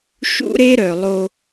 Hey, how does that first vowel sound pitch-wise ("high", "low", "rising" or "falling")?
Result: high